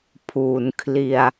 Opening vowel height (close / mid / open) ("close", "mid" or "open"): close